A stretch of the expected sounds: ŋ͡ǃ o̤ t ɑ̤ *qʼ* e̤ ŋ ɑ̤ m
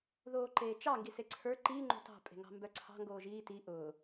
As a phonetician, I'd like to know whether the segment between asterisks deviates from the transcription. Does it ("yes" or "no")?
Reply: yes